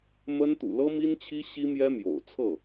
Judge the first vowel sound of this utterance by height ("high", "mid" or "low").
mid